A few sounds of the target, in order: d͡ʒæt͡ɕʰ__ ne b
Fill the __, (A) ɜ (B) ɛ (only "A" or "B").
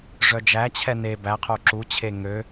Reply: B